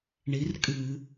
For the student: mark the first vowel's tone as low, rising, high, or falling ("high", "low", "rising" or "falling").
rising